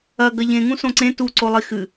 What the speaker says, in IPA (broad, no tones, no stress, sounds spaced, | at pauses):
ɐ ɡ ɐ ʎ ẽ ŋ ũ s õ ǀ ẽ t u ǀ o lˠ i x ɨ